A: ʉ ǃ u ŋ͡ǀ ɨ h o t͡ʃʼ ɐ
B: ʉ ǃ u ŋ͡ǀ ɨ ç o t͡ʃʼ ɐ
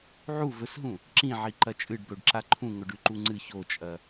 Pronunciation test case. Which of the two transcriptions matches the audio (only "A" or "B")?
B